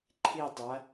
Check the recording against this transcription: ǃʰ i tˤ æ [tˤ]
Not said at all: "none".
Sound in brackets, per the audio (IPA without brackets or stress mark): none